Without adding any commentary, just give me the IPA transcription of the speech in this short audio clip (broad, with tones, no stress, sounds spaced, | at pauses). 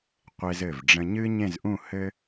qʷ e˧ z ɘ˧˩ v ɖ͡ʐ ə̃˧ ɲ ɨ˥ ɲ ẽ˥˧ z ʔ ũ˥˧ h ɘ˥